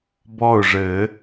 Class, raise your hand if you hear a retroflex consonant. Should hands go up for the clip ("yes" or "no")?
yes